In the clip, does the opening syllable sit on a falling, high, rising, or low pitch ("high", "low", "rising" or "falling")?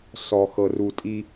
low